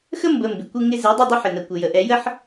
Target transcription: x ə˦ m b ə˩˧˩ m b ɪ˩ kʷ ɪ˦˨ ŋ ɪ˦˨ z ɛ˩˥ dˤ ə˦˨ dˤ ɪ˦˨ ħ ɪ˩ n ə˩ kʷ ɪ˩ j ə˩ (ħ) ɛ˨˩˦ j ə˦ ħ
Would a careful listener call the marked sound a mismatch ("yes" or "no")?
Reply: yes